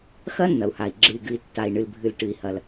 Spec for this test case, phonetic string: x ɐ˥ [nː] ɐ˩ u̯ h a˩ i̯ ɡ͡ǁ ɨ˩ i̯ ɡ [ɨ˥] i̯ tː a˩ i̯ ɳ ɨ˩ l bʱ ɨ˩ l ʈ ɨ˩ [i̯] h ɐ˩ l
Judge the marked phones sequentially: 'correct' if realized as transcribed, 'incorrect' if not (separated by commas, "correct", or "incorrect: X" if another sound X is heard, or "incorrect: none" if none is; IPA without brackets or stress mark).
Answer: correct, incorrect: ɨ˩, correct